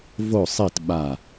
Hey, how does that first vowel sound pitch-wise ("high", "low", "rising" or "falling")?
falling